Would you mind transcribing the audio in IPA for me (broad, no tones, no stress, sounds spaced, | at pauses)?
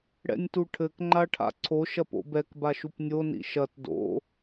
ɽ ɛ̰ nʲ t u ʈʰ ɘ k ŋ͡ǃ a ʈʰ a̰ ǀʰ o ʃ ɐ p o̰ b ɛ k b a ʃ u p nʲ o n ḭ ʃ ɐ t d o̰